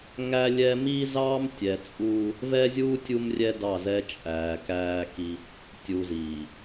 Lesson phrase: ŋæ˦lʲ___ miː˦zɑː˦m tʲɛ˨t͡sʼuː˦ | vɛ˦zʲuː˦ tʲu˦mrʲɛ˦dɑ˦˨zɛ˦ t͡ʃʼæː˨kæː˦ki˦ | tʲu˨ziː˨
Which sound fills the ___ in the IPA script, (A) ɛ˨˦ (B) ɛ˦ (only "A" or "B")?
B